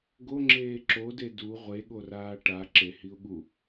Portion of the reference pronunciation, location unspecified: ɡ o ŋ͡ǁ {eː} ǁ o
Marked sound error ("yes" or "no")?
no